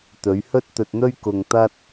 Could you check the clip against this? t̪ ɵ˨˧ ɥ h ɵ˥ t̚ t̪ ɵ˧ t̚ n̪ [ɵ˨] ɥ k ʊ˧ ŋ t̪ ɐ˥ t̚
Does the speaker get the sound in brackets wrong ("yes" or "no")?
yes